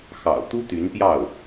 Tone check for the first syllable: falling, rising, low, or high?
low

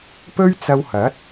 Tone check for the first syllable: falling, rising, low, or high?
high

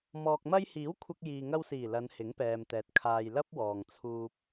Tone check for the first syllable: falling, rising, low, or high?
low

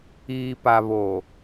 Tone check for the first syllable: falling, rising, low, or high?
low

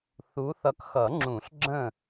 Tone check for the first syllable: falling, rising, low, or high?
rising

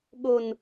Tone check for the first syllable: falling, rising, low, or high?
high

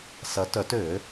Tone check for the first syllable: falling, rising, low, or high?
rising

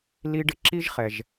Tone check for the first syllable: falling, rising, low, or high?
high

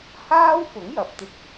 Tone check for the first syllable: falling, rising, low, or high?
high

